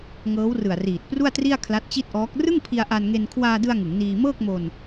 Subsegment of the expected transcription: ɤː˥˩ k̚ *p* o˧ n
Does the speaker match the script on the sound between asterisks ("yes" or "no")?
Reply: no